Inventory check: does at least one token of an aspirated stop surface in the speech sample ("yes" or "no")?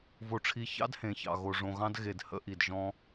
yes